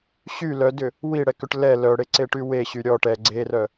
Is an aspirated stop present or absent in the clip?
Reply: absent